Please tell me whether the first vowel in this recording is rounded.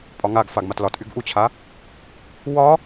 yes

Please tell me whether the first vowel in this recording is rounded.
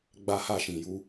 no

